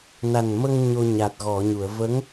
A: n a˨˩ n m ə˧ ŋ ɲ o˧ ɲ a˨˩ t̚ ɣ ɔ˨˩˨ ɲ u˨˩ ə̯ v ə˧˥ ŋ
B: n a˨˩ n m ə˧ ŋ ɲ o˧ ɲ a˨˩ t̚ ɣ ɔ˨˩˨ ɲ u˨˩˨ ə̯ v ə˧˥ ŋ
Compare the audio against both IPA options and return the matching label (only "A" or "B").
B